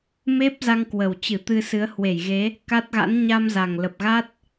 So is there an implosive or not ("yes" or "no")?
no